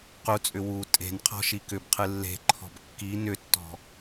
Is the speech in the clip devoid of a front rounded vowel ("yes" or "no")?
no